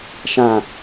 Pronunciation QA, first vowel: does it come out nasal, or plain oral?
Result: nasal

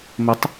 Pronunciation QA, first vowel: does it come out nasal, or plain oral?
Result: oral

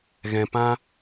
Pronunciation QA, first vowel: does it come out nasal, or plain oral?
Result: nasal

